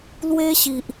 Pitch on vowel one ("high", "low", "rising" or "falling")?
high